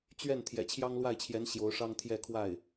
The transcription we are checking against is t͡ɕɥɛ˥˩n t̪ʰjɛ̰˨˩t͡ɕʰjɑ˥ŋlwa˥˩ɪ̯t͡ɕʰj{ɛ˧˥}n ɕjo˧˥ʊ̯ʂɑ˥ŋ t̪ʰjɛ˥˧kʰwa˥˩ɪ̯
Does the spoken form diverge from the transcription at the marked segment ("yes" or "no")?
no